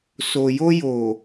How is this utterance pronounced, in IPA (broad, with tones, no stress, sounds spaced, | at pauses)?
s o˨ j o˧ j o˨